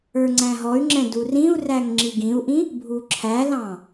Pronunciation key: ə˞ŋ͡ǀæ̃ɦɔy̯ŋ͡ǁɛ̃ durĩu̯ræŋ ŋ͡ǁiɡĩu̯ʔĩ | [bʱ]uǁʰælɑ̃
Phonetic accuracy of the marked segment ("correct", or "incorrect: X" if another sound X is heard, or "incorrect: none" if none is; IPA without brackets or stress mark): correct